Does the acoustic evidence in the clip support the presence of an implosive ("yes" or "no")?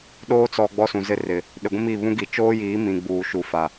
yes